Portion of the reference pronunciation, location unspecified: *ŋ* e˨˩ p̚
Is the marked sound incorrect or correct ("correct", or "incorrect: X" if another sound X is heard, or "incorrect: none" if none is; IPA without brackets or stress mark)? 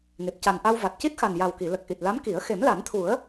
correct